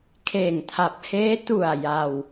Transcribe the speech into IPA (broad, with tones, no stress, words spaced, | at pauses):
kʰeː˨˩ŋtʰa˨˩p̚heː˦˥ tu˨˩a̯ ja˧w